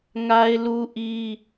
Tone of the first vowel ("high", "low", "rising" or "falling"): high